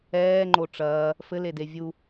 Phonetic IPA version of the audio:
ɛːŋ͡ǃo ʈ͡ʂɐː | fɘlede vʲu

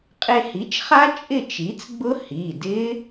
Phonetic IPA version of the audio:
qʼe˧hi˩˥t͡ʃχa˦˥ t͡ʃʼɪ˥˨t͡ʃi˩˥t͡sɡ͡bʊ˦˥ hi˩˧˩dɪ˦˥

